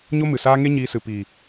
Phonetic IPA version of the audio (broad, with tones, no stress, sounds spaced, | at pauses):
ɲ o˦ m ɨ˨ s aː˦ ŋ e˦ ɲ iː˧ s ɨ˨ p iː˨